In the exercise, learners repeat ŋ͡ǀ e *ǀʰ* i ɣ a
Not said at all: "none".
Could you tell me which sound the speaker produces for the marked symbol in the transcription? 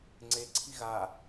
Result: ǀʰ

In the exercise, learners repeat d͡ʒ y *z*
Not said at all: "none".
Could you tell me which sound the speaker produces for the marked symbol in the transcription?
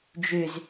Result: z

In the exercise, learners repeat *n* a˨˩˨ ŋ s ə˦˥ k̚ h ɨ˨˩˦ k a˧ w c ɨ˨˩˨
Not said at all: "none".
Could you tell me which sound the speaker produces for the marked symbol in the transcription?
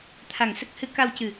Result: t̪ʰ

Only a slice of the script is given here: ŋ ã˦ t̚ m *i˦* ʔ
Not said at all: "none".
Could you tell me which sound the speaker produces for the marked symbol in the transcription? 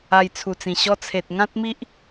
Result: i˦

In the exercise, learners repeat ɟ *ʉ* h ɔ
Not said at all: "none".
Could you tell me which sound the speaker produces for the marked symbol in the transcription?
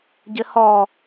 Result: ɘ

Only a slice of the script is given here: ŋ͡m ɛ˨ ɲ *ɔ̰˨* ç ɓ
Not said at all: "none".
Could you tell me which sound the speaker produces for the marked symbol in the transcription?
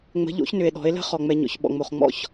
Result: ɔ̰˨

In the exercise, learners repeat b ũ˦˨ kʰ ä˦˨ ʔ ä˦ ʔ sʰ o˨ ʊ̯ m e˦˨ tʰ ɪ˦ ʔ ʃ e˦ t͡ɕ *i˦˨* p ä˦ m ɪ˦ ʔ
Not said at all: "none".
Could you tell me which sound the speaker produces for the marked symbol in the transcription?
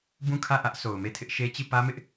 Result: i˦˨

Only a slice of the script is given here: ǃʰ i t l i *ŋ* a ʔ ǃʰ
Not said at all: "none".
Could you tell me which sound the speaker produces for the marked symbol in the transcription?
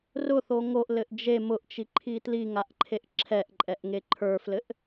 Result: ŋ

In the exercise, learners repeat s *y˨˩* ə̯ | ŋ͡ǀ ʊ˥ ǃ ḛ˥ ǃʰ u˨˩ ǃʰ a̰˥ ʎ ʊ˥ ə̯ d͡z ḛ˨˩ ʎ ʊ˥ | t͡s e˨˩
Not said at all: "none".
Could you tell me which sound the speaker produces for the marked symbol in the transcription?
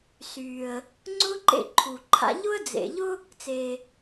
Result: y˨˩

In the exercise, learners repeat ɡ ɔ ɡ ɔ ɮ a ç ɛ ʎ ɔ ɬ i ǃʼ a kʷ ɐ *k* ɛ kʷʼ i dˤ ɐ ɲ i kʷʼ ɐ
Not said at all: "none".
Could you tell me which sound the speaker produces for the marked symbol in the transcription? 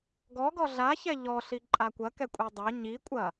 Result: k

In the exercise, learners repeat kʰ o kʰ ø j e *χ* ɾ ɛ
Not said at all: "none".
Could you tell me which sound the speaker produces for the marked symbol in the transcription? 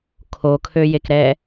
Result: k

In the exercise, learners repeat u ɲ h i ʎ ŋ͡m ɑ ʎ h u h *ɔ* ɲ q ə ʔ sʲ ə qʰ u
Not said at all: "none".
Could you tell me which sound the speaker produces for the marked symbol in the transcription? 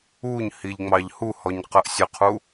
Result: ɔ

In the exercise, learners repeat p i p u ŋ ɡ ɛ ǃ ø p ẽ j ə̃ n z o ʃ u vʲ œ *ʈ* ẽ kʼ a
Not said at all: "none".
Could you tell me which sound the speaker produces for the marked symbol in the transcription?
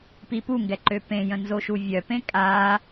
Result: p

